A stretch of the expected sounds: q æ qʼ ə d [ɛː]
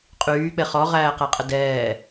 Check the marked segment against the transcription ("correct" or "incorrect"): correct